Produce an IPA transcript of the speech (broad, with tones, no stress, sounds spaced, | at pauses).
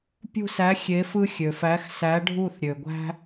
pʲ ṳ˦˨ s æ˨˥ xʲ e˨˥ f ɯ˦ xʲ ø˩ f æ˨˥ x s æ˨˥ ɖʱ u˦˨ θ ɾʲ ø˩ ɡʷ æ̤˦